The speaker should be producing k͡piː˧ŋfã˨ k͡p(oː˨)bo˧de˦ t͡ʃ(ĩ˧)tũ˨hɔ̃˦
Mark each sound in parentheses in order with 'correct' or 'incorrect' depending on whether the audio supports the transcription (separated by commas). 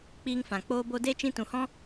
incorrect, correct